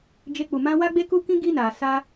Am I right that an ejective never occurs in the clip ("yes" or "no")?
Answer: yes